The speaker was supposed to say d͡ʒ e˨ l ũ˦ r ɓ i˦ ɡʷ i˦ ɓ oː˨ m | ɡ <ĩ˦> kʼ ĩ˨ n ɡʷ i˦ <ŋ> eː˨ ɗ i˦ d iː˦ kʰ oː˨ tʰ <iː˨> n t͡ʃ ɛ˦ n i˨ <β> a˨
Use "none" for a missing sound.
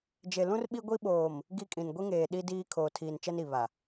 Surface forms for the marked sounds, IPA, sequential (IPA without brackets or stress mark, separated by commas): i˦, ŋ, iː˨, β